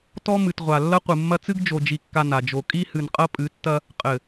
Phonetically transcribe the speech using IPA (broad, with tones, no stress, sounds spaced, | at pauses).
t ɔ˦ m ɨ˨ t ʁʷ a˨ lː ɐ˦ qʷ ɨ˨ mː ɐ˦ t͡s ɨ˦ ɡ d͡ʒ o˨ d͡ʒ i˨ kː a˨ n a˨ d͡ʒ o˨ kʼ i˦ h ɨ˨ n qʼ ɐ˦ pʼ ɨ˨˦ tː ɐ˦ | qʼ ɘ˨